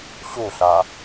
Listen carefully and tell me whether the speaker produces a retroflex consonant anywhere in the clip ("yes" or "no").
no